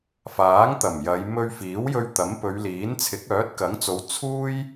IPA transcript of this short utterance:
f aː˨˥ ŋ t̪ ɐ˨˩ m j ɐ˨˧ j m ɵ˧ ɥ f iː˨˥ w j ɵ˧ ɥ t̪ ɐ˨˥ m p ɵ˨˧ ɥ l iː˨˥ n t͡sʰ ɪ˨˥ k̚ œː˨˥ t̚ k ɐ˨˥ ŋ t͡s o˨˧ w t͡sʰ uː˥ j

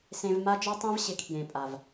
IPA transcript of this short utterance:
s ẽ˧ v m a˦ d͡ʒ ɔ˦ tˤ ĩ˦ v ɕ ɪ˨˦ kʰ j ẽ˨ pʼ a˨ v

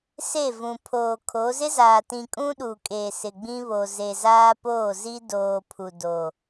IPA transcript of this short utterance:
s e˦˨ v ũ˨ pʰ oː˨ kʰ o˨˦ z ɪ˦ z aː˨ t ĩ˨ kʼ ũ˦ ɗ u˨ kʼ eː˨ s ɪ˨ ɡ͡b ĩ˦ β o˨ z e˨ z aː˦ p oː˦˨ z i˦ d oː˨ pʰ u˨ d o˨

